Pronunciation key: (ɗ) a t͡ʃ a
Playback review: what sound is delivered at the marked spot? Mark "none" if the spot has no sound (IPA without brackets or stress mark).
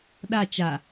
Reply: ɗ